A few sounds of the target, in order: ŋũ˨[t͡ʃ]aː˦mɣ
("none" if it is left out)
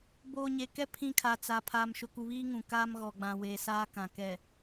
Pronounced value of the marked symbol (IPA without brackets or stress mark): k